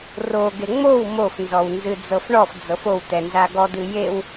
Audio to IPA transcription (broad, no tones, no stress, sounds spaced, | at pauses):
r o ɡ e ŋ͡m o w m o f n z ɔ w n z ɨ d͡z ɤ f ɳ ɔ f d͡z ɤ f o w t̪ ɛ n z a ɡ ɔ d̪ ɨ j e w